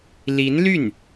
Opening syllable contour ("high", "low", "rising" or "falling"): rising